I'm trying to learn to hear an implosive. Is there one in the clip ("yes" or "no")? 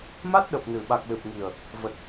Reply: yes